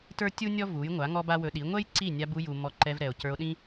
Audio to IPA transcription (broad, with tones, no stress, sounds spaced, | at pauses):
t ə˞˦ tʲ u˦ nʲ ɔ˦ v u˨˦ j ŋʷ a˨˦ ŋ ɔ˦ b a˦ w ɵ˧ ɗ i˨˦ ŋʷ ɛ˦ j ǀ i˦˨ nʲ a˧ b u˧ j u˨ m ɔ˧ ǃ ɛ˧ v ɾ ɛ˨ o̯ c ə˞˧ o̯ ɗ ĩ˦